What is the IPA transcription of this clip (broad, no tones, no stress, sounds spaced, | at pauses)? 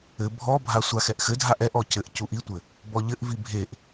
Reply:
ɘ bʱ ɔ bʱ a sʷ a x ɛ ʔ x ɘ dʱ a ʔ ɛ ʔ ɔ c ɘ ʔ c u ʔ i tʷ ɘ | b ɔ ʎ ɘ ʔ v i bʱ e ʔ